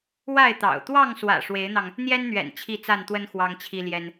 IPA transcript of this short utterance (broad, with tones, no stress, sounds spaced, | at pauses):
w a˥˨ ɪ̯ t̪ ɑ̰˨˩ ʊ̯ t̪ w ɑ˥˨ ŋ s w ä̰˨˩ ʂ w e˨˦ ɪ̯ n̪ ɑ˧ ŋ | n̪ j ɛ˦ n n̪ ɥ ɛ̰˨˩ n t͡ɕʰ i˥˨ t͡s a˥˨ n t̪ w ə˦ n x w ɑ˦ ŋ t͡ɕʰ i˦ l j ɛ˦ n